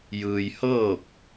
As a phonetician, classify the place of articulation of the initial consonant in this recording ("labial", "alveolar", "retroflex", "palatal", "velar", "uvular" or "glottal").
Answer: palatal